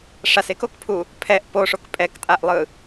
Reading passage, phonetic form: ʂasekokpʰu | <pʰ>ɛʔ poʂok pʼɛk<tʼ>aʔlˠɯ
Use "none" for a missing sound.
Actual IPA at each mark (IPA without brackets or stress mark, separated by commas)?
pʰ, tʼ